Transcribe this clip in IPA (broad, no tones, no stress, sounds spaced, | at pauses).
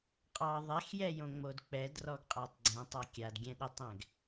qʼ ɑ ðˤ ɛ x j ɛ j õ ŋ͡m o d k͡p ɛ d r ɔ ɡ qʼ a tˤ ɡ͡ǀ ɛ̃ tˤ a kʲ a d ɡʲ ɛ̃ ɗ i tˤ ɛ̃ ɡ